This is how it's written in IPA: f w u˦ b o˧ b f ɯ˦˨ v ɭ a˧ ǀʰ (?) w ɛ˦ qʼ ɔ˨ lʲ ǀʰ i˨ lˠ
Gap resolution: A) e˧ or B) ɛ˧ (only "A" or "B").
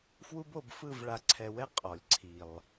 B